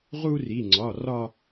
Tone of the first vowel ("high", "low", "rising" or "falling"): high